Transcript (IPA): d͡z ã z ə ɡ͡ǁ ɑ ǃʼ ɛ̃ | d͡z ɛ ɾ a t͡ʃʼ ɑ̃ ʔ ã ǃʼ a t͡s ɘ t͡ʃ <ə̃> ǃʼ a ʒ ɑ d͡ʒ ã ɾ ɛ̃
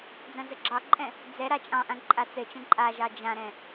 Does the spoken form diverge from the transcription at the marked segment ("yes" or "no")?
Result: yes